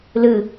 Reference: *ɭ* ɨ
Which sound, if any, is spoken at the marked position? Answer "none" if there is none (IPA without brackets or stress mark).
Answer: l